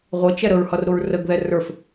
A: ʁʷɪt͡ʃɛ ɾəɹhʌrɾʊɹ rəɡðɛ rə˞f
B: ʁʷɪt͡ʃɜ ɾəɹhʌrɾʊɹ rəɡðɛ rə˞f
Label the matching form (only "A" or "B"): A